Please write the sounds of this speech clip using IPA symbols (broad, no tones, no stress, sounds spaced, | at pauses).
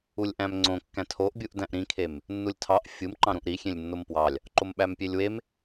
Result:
u lʲ ʔ æ̃ m ŋ͡ǀ õ kː æ̃ tʰ o ʔ bʲ u ʔ d æ̃ ʔ ɾ ĩ kʰ e m | nː u lʲ tʰ ɑ ʔ fʲ ɯ m ǃ ɑ̃ ɾ ũ ʔ ɾ i xʲ ẽ lʲ nː o m p w ɑ lʲ | ǃ o m ɓ æ m pʲ e lʲ w e m